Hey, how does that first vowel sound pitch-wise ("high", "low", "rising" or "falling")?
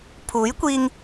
rising